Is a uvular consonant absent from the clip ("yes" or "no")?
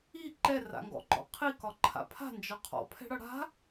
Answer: no